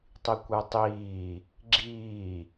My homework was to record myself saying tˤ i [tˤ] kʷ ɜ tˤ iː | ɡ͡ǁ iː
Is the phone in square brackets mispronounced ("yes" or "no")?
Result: yes